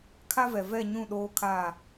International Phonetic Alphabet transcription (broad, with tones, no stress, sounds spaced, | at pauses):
kʰ a˦ v ɛ˨ v ɛ˦˨ ɲ ũ˦˨ ɗ oː˦ kʰ aː˦˨